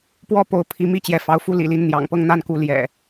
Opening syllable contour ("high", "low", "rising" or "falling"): falling